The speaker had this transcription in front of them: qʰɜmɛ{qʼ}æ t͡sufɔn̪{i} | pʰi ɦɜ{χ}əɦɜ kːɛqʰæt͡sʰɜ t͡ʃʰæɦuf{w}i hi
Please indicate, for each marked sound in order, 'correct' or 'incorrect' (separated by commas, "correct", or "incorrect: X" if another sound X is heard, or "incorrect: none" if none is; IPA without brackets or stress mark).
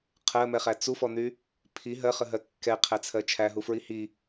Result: incorrect: χ, incorrect: y, correct, incorrect: ɹ